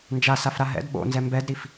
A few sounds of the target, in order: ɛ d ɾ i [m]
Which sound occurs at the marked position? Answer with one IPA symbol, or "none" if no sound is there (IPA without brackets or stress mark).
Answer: f